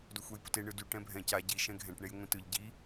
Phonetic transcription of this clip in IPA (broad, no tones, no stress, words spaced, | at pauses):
dʊxʷɛjpʊte ɳɯdy ʈɛ̃bʱɛ̃ ca ɟi ʃɛ̃ɡʱɛ̃ʈ ɳejŋʷĩtɯʎ ɟi